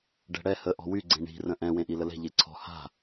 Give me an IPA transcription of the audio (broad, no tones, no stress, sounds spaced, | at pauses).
ɖ ɛ̤ ɽ ɛ h ə ʔ ɔ̤ w y ɡ͡ǀ ẽ ɳ i̤ r ə̃ ʔ ɛ̃ w ẽ ʔ i l ə l ɛ̤ ʎ e ǀʰ ɔ̤ h a̤